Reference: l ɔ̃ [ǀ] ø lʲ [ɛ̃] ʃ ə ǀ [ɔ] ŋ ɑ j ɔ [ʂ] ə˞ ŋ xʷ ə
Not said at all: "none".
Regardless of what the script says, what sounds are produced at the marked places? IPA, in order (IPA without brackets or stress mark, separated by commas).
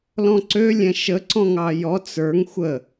ǀ, ɛ̃, ɔ̃, t͡s